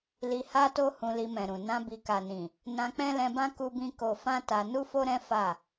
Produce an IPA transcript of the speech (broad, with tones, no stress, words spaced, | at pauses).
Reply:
li˧ha˦to˦ hũ˧li˧mɛ̃˨ɾũ˨ nã˧bi˨ka˨nĩ˨ | nã˧k͡pɛ̃˦lɛ̃˧bã˦ ku˦bĩ˦ ko˧fã˦ ta˧ nu˦fo˦ɾɛ̃˦ fa˦˨